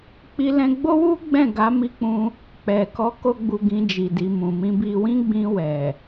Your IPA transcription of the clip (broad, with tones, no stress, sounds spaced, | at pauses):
k͡p i˦ l ɛ̃˦ ɡ͡b o˦ w u˦ ɡ͡b ɛ̃˦˨ ɡ a˨˦ m i˧ k͡p ũ˧ | k͡p ɛ˨ k ɔ˨˦ k o˦ ɡ͡b u˧ ɡ ĩ˧ d͡ʒ i˨ d i˨ m ũ˨ m ĩ˧ b i˧ w ĩ˦ ɡ͡b ĩ˧ w ɛ˨